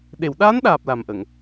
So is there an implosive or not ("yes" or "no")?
yes